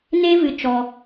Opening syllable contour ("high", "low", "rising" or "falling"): high